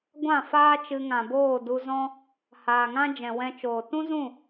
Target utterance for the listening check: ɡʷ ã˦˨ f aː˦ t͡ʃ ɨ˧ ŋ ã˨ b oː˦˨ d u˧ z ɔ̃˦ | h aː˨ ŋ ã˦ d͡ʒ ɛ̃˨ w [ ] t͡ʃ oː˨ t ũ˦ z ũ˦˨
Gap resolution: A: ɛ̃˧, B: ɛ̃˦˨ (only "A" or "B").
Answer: A